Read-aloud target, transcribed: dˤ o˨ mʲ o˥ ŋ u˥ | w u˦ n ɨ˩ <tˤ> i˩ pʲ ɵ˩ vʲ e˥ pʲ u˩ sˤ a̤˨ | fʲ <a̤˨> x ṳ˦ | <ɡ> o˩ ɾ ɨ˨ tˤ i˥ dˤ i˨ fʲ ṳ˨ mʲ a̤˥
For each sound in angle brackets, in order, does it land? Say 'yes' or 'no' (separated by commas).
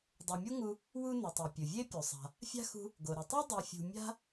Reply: yes, no, yes